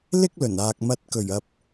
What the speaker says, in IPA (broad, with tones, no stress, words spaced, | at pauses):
lɪ˥k̚lɵ˨˩n aː˨k̚mɐ˧t̚ kɵ˨˩ɥɐ˨p̚